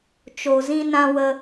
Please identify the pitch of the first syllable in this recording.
low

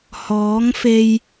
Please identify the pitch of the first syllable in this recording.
rising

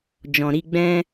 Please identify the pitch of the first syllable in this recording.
low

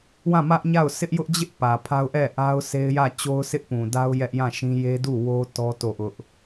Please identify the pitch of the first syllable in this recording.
falling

